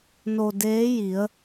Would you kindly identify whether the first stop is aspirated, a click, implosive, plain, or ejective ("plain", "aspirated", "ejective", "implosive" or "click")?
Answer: plain